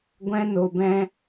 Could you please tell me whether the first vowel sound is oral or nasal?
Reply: nasal